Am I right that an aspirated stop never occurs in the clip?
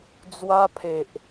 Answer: no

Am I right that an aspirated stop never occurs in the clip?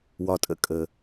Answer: yes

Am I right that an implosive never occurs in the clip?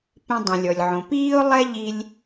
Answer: yes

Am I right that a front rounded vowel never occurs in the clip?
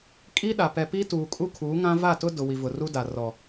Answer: yes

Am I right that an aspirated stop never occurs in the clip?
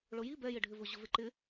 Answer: yes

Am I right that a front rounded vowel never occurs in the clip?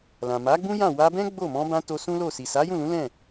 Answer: yes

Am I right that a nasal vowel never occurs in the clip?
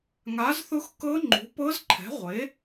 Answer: yes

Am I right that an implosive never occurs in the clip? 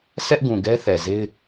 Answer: yes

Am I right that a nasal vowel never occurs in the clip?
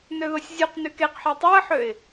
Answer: yes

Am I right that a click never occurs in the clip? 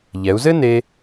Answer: yes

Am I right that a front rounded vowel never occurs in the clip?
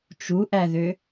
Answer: no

